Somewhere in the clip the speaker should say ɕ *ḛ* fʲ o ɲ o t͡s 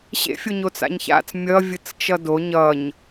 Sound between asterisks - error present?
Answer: no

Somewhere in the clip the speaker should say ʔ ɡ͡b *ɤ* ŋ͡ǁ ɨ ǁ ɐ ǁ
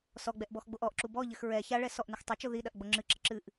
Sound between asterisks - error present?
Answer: yes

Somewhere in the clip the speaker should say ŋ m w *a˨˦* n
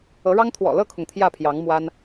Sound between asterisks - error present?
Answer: yes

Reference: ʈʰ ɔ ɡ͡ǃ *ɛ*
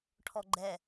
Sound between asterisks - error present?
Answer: no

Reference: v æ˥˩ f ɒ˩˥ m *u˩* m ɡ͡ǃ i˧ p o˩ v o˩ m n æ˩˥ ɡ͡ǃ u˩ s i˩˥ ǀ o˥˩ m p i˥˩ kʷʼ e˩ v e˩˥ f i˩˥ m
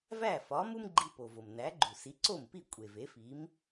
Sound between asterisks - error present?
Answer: yes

